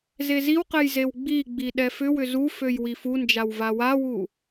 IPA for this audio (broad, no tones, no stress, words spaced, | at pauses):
zeziwqɛj zewɡ͡biɡ͡bi ɗɛfʏwʏ zuføj wifund͡ʒaw vawawu